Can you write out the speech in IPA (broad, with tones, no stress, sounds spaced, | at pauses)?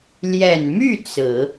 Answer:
l j ɛ˨˩ n m y˥˩ t͡s ɹ̩˨˩˦